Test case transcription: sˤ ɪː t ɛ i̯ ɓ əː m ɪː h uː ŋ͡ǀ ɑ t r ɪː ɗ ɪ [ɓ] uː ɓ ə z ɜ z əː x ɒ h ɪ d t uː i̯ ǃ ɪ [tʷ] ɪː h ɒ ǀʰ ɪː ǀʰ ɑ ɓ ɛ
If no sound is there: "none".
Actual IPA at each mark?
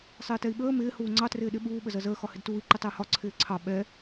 ɓ, tˤ

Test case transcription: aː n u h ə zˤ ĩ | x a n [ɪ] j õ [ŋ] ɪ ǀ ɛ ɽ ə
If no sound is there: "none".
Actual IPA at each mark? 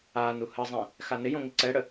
ɪ, ŋ

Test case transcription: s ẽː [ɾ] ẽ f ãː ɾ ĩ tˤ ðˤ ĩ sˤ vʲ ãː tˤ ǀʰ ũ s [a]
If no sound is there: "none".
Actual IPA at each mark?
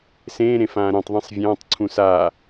ɾ, aː

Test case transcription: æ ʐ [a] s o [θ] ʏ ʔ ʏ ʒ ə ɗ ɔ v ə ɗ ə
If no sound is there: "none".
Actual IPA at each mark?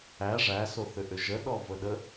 æ, θ

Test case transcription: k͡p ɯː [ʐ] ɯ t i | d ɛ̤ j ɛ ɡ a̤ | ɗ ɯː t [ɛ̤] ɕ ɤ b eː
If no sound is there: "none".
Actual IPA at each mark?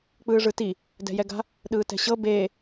ʐ, ɛ̤

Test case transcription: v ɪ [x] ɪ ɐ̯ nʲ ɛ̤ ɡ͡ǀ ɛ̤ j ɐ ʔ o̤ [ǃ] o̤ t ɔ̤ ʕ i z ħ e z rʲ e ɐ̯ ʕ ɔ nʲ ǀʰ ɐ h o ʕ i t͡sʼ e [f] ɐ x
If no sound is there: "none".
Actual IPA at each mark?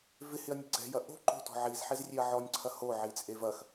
h, ǃ, v

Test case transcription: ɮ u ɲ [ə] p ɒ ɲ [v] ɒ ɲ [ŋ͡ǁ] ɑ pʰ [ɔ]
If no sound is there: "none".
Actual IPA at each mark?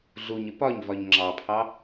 ə, v, ŋ͡ǁ, ɑ

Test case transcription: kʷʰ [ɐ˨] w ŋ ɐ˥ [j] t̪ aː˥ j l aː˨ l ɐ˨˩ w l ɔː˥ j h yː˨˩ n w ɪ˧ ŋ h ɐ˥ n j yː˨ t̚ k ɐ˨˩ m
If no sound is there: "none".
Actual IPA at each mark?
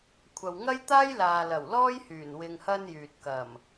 ɐ˨, j

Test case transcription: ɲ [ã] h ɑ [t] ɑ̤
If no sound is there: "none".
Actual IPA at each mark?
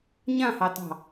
ã, t

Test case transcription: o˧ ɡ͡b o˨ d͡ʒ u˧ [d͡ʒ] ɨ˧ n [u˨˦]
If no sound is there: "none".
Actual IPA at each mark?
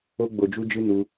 d͡ʒ, u˧

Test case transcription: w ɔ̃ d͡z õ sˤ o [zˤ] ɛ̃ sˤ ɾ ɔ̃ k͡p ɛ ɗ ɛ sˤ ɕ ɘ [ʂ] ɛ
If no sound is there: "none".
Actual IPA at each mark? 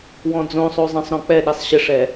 zˤ, ʂ

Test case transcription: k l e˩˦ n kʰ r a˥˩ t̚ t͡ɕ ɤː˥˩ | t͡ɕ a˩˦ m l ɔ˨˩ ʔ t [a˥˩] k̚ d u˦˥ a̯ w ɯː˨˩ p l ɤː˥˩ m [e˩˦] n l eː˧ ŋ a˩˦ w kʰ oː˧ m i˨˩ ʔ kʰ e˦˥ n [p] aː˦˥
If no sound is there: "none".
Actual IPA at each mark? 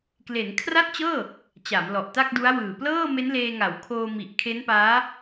a˥˩, e˦˥, p

